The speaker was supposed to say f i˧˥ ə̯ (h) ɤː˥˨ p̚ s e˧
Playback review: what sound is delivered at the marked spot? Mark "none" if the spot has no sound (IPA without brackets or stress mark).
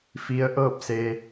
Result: ʔ